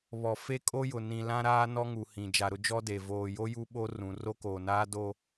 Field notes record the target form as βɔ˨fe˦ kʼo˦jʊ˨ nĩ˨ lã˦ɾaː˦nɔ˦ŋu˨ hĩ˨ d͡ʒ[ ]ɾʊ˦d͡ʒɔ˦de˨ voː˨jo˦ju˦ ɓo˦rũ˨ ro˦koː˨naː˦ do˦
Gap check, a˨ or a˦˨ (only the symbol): a˨